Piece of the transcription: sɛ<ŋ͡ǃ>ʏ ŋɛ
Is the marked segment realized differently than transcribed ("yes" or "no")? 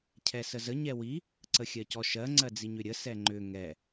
no